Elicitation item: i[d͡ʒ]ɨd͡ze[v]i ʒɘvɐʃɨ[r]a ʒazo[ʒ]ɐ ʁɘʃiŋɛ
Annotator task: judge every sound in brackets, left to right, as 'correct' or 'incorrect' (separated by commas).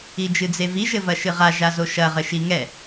correct, correct, incorrect, incorrect